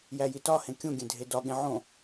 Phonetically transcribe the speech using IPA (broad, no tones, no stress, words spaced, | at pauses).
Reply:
jæjitɒhẽ kʲũɡʲẽ dʱedɒɠẽ ʕõ